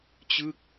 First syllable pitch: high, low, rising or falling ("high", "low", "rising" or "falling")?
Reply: falling